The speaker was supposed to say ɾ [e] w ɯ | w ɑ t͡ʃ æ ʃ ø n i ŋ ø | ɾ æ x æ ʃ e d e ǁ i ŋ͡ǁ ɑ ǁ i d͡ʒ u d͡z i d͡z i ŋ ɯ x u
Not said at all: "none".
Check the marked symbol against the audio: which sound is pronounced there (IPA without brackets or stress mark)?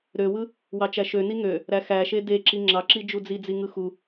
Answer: ø